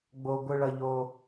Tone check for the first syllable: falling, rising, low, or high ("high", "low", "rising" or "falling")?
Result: high